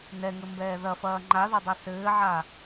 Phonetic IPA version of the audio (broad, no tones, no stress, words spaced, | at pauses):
nɛŋɘmbɛː ðɐfɐː ŋ͡ǃaðɐdˤa sɘːʕa